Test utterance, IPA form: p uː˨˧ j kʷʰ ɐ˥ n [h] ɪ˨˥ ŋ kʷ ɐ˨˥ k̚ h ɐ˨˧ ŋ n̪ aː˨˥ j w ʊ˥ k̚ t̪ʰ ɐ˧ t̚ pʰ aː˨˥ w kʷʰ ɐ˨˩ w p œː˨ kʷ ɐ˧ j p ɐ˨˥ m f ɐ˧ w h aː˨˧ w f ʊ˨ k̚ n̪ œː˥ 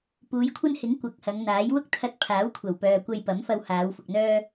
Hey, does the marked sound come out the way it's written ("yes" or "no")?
yes